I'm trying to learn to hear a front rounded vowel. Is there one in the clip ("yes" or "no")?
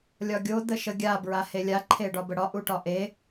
no